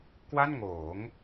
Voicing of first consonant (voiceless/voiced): voiceless